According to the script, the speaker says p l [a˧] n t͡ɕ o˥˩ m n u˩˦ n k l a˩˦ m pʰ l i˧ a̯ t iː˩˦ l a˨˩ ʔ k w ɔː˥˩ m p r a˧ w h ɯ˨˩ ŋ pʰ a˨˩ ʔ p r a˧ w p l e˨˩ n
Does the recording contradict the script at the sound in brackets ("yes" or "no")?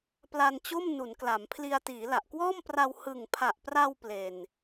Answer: no